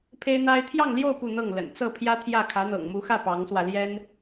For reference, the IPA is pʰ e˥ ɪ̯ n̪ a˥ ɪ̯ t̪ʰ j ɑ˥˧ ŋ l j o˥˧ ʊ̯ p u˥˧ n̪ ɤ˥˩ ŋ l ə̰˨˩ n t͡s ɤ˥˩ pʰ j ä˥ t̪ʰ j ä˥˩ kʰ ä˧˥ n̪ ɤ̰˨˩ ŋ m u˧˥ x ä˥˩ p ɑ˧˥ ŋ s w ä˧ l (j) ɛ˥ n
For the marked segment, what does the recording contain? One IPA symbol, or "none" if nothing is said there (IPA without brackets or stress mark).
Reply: j